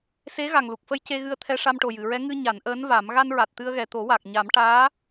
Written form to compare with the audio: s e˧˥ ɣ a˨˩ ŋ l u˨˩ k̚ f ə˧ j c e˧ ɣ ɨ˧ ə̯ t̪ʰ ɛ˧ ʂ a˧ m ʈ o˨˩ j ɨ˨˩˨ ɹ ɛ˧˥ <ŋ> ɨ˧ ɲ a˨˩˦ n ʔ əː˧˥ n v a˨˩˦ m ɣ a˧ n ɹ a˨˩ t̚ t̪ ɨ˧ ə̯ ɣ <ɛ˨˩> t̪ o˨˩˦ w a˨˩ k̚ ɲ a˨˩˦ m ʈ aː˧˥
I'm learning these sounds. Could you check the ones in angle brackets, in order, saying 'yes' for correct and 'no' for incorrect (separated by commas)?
yes, yes